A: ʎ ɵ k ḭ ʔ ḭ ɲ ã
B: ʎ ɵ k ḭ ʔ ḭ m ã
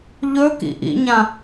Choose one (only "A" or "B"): A